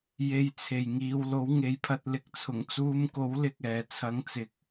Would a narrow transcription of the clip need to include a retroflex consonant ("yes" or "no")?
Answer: no